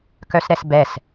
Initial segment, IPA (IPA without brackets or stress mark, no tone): k